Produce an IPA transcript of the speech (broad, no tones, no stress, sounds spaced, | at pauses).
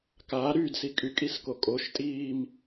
k aː ɾ y d s i kʼ y kʼ i s k o kʼ o ʃ tʼ iː m